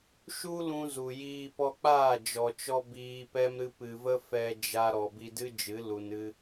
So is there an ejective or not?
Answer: no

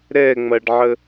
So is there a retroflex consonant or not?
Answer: yes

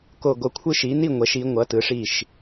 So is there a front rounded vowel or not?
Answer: no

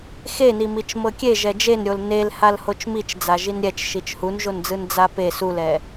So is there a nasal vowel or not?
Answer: no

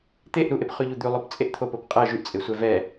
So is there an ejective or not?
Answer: yes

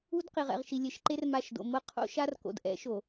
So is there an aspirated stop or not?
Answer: yes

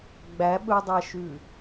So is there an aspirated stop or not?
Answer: no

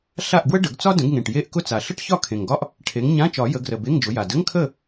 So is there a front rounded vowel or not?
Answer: no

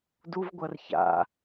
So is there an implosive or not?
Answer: no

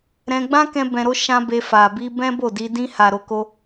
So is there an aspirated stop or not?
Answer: no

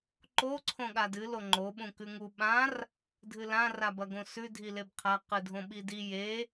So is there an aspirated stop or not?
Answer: yes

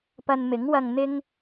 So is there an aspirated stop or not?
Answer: no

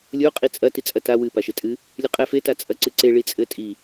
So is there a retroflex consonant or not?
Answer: yes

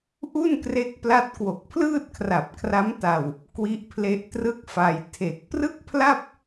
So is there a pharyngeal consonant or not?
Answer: no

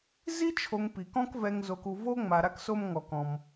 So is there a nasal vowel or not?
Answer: yes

